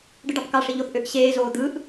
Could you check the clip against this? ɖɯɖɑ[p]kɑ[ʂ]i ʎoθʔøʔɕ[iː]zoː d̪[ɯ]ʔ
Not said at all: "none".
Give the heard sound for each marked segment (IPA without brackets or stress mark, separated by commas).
p, ʂ, eː, ɯ